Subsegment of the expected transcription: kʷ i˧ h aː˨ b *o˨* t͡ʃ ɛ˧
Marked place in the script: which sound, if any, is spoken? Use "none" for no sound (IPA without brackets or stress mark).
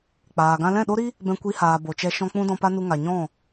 o˨